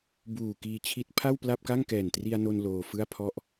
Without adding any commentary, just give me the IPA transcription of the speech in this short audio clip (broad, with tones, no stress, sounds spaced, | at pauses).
b uː˨˩ k iː˧ t͡ɕʰ i˦˥ t̚ pʰ a˥˩ w p l a˥˩ p̚ k a˥˩ ŋ k ɛː˨˩ n t r i˧ a̯ n o˧ n l oː˧ f ɯ˥˩ a̯ pʰ ɔ˥˩ ʔ